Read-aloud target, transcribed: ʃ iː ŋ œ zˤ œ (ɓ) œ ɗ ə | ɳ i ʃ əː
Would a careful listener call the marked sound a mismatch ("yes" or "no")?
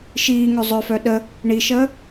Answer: yes